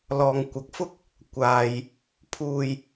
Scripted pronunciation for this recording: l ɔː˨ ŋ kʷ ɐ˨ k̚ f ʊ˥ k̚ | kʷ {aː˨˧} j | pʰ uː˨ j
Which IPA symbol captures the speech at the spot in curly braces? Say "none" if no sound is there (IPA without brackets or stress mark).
aː˨